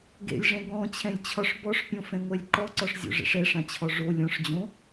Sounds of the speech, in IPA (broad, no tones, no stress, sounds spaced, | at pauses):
ɡ ḛ lʲ ʐ ɛ̃ ɡ ɔ̃ t͡ɕʰ ɛ̃ lʲ t͡ɕʰ ɒ ʂ b ɔ ʂ pʲ õ f ɛ̃ ŋʷ ɛ lʲ ǃ ɔ ǀ ɒ ʂ zʲ o̰ ʐ ɛ̰ ʂ ɛ ʂ ã t͡ɕʰ ɔ ʐ o lʲ ɔ̃ ʂ d͡ʑ õ